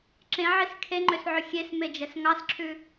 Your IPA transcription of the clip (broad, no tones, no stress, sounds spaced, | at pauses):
ǁ ẽ ʕ i s kʰ e ŋ͡ǃ ø s ʕ ɵ xʲ e s m e d͡ʒ ɛ s ŋ ɑ s ǁʰ ʉ